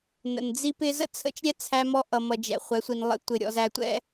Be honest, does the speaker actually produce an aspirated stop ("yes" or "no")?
yes